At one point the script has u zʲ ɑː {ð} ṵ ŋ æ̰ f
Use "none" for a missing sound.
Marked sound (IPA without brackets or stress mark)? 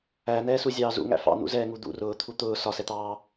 z